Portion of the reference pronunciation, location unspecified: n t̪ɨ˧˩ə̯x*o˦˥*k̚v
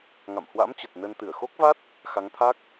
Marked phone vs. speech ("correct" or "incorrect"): correct